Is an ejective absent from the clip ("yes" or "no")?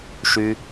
yes